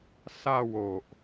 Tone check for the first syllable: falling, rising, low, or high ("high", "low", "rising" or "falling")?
falling